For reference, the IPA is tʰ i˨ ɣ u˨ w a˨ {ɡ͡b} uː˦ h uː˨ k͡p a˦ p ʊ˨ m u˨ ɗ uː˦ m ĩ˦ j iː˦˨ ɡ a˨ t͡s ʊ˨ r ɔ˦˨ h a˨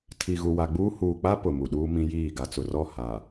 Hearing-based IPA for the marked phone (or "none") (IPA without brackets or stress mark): ɡ͡b